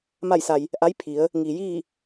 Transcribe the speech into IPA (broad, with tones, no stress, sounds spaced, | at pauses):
m a˥˨ j s a˧ j | ʔ a˧˥ j pʰ i˩˧ ə̯ | ŋ iː˩ j iː˥˨